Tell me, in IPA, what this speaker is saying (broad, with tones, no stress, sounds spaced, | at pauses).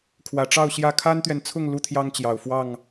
kʰ w ä˨˩ ʈ͡ʂ ɑ˥˨ ʊ̯ ɕ j ä˥˨ kʰ a˦ n t̪ ɥ ɛ˨ n t͡sʰ ʊ˥˨ ŋ l u˦ t̪ʰ j ɑ˦ ŋ t͡ɕ j ɑ˨˩ ʊ̯ f w ɑ˥˨ ŋ